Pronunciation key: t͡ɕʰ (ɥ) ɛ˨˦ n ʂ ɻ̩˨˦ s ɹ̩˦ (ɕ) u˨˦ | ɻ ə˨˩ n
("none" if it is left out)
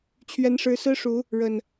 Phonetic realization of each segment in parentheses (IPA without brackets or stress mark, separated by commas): ɥ, ʂ